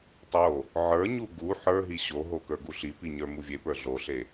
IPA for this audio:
tˤo | ʕə˞ɲu ɡu ħə˞ɦi ɕoɦo kə˞ɡuɬipi ɲə˞muvʲepə˞ ɮoɬe

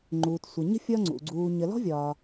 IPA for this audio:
ŋ͡ǃuː˨tsʷə˨ ɲə̤˥fʲɒ˦ŋ͡ǀṵ˩ɡ͡ǀuː˨ ɲə˨lɔ̤˥ vʲɒ˨

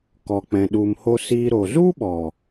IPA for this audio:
kɔ˨k͡pɛ̃˨ ɗu˨mho˧siː˧ ɾo˨zu˦ɓɔ˨

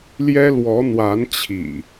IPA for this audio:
ljɛ˦lwɔ˨˦n̪wa˨˦nt͡ɕʰḭ˨˩

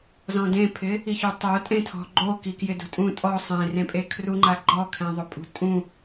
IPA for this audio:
zɔ̃dẽpʰɪ | içutˤo tʼẽtʰɔ̤ɡ͡ǃo kikjɪdṳtʼũ tʼɔ sˤẽrẽ pʼekʰruŋ͡ǃa ɡ͡ǃɔkʰẽðˤʊpʼṳ tʼũ

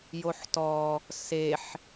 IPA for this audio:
joħtɔ | seħ

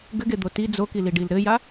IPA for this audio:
ɡɘɡed̪o ti d͡zokiliɖil ɾɘja

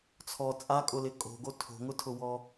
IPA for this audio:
t͡sʰɔ t͡sʼakʼʊlɪ kʼo̤ɡo tʰo̤ŋʊtʰʊwɔ

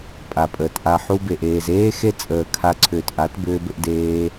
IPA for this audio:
pʼa˨pʼəː˨tʔa˧ ħu˧be˨ʔ eː˨zeː˦ xe˦t͡sʼəː˨kʰa˧ǀʰʏː˨t ʔa˨˦tbʏː˧bʏ˧ʔdeː˧

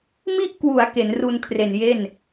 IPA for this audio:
mi˥˩ʔkwu˩˦a̯ ke˩˦nru˧n kʰre˨˩nje˥˩n

